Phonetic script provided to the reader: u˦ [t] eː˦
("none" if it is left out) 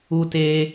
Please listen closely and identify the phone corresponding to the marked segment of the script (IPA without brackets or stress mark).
t